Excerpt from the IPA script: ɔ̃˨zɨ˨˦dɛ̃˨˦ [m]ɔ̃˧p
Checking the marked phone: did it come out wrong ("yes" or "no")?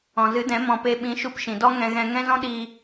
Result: no